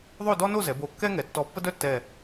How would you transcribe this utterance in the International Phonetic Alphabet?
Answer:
ðˤo˥˧dɔ˥no˥˧zɛ˩˧ bo˧˩kːɛ˥ŋɛ˩˧ tːɔ˧˩pːə˥dœ˥tːɛ˧˩

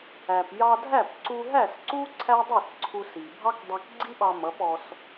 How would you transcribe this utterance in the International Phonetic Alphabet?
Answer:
æ˩p jɑ˧dʱæ˥˩pǀu˧ ɦæ˥˩sǀu˥ ǀʰæ˥dˤi˥˩sǀʰu˧s i˩ bʱɑ˥kdˤæ˧kɡ͡ǀi˥ɓɑ˧ mʌ˩˥pɔ˧s

